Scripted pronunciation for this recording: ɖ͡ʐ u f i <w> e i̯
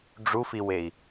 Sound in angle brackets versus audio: correct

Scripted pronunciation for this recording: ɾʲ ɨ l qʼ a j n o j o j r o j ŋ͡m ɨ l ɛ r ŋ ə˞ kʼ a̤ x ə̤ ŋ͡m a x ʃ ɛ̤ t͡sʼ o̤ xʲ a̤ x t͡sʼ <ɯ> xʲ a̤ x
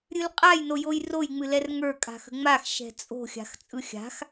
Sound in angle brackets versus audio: correct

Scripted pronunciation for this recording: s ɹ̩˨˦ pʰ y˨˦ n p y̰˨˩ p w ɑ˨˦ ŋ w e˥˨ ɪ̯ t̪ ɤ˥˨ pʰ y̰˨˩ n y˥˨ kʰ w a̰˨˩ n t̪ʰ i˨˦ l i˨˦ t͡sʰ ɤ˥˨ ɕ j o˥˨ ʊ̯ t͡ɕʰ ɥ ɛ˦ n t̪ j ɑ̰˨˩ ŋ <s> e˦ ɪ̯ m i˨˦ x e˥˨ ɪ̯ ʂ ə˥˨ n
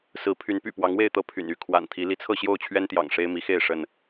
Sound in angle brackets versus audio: incorrect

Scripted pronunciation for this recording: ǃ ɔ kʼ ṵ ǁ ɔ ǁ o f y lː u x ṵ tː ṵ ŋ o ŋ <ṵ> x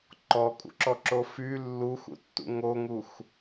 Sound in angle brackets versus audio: incorrect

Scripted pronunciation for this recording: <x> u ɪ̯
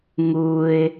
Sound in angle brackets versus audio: incorrect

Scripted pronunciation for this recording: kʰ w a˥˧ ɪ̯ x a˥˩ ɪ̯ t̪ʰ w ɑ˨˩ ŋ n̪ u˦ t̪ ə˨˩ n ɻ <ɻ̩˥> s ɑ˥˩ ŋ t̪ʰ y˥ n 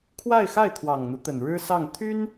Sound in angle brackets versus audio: correct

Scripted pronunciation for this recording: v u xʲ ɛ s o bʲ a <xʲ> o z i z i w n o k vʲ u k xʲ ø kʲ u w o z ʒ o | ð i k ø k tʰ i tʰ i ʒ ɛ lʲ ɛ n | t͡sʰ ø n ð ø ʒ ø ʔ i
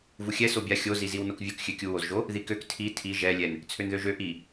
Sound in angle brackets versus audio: correct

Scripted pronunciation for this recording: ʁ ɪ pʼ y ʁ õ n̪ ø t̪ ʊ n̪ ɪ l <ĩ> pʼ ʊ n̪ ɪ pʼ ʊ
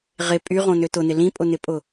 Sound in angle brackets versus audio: correct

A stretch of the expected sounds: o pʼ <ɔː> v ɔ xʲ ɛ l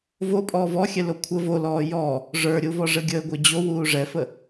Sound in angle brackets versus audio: correct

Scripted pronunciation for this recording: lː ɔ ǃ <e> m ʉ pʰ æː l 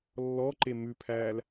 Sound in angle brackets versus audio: correct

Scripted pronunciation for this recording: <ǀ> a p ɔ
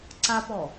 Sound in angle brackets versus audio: correct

